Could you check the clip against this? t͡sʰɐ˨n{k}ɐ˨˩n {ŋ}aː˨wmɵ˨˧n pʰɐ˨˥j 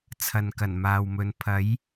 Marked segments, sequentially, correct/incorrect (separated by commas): correct, incorrect